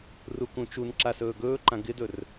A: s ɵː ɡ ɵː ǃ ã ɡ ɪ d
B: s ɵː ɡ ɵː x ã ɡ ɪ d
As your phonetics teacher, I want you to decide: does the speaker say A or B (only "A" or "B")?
A